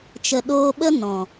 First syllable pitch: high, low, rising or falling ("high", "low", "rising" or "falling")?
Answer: low